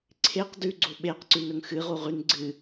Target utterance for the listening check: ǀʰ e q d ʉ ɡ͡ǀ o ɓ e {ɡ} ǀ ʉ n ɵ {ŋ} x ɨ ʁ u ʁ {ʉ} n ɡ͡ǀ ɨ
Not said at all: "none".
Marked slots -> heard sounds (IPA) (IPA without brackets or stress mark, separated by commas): q, ŋ, ʉ